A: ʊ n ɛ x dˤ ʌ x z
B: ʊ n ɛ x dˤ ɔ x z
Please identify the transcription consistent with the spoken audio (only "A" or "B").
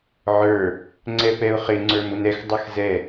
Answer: A